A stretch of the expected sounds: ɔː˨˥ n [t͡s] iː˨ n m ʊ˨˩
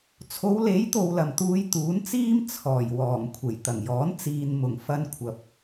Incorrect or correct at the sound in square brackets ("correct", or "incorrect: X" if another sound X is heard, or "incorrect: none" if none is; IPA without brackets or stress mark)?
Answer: correct